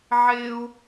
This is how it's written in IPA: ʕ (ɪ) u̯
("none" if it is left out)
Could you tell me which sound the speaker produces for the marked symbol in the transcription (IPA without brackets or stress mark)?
ɪ